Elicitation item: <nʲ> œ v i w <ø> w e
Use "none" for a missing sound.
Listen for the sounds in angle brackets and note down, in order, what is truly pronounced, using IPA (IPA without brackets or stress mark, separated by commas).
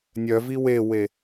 nʲ, e